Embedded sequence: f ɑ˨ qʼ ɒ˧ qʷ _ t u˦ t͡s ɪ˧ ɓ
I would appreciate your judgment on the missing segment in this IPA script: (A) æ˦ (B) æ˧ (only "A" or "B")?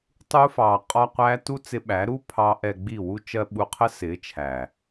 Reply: B